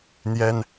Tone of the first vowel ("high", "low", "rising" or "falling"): high